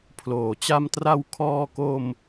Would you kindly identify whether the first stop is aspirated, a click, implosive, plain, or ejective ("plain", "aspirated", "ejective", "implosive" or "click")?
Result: aspirated